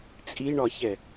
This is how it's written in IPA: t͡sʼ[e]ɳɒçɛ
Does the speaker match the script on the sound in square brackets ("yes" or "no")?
no